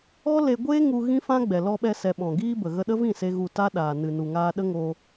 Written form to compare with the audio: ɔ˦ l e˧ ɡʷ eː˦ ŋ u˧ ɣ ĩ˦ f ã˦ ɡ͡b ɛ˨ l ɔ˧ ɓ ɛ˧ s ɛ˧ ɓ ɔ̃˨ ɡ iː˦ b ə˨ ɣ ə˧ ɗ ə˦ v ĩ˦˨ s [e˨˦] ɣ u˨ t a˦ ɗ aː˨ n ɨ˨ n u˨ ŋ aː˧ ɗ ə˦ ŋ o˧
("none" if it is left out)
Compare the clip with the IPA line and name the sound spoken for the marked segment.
e˧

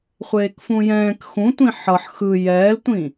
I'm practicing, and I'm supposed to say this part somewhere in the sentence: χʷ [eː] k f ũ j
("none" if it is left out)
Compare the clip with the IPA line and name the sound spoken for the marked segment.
eː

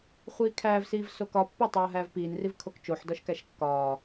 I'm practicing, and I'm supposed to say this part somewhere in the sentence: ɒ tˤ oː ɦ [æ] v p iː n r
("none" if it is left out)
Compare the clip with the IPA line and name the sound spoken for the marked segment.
æː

